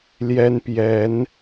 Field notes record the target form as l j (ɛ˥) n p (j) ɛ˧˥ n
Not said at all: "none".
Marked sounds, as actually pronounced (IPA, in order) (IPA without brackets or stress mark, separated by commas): ɛ˥, j